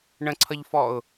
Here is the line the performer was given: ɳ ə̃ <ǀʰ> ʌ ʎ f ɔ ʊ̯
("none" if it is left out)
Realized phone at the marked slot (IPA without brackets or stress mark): ǀʰ